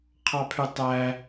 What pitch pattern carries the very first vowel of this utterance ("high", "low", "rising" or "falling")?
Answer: low